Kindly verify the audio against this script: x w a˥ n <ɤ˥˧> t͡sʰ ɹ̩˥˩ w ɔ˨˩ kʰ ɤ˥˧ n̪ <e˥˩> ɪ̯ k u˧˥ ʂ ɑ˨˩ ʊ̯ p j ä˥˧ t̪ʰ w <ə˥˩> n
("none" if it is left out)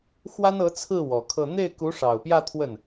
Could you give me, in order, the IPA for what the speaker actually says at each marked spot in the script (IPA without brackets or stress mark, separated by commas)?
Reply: ɤ˧˥, e˥˩, ə˥˩